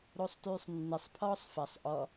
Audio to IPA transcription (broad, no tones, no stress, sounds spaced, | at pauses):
ɾ o sˤ t yː sˤ nː ɪ sˤ pʰ ɔː sˤ f ɐ sˤ ʔ ɔ